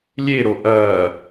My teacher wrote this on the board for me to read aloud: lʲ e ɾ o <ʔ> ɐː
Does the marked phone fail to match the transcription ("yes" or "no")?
no